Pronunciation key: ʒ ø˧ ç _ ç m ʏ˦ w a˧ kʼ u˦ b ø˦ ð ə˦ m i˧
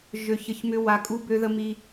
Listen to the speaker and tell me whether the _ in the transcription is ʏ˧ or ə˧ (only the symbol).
ə˧